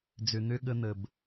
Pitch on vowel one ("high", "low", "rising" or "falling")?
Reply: low